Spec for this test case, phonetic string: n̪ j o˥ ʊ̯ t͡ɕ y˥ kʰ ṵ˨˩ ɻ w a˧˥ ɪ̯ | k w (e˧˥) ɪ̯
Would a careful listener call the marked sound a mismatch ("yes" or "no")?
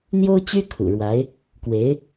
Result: no